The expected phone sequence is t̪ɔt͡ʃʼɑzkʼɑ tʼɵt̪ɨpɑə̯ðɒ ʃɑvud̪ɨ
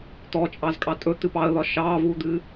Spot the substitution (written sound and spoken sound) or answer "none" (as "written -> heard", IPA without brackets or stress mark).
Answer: none